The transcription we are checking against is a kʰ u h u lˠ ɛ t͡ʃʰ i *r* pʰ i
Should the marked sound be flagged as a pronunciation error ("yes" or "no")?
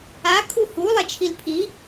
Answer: yes